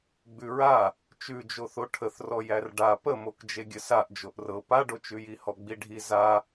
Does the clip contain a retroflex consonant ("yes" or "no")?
yes